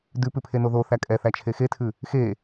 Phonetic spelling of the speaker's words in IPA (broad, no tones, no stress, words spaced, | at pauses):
dʉpʉpʰeno ðoθæ kʼɛθæt͡ʃʰe xetʰʉ | xe